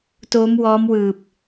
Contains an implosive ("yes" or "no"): no